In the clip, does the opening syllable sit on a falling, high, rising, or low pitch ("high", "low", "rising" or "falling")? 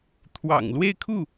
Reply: low